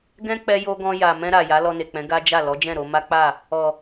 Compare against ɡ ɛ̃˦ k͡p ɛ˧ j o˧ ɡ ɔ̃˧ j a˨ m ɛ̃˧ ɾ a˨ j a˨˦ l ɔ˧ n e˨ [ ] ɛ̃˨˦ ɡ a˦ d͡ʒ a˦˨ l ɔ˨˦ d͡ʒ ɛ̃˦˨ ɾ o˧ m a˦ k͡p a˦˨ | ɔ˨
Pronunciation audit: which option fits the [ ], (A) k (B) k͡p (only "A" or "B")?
B